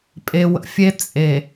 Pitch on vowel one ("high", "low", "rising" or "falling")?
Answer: low